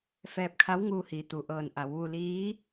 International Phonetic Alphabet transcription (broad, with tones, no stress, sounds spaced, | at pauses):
f ɛː˧ p̚ kʰ a˧˥ w ŋ uː˧ h iː˩˧ t̪ u˩ ʔ ɤː˧˩ n ʔ a˩˧ w ʋ u˧ l iː˧˥